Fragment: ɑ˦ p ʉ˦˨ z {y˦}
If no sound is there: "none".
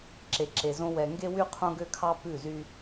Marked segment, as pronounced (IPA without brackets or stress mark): y˦